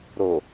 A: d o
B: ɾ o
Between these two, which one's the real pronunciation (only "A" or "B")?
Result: B